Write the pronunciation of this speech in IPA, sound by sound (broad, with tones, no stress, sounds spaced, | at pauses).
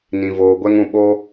n ĩ˨ v oː˨ ɡʷ ɛ˦ ŋ ũ˦˨ ɓ o˦